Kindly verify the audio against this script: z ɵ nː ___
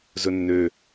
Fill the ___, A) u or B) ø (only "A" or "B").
B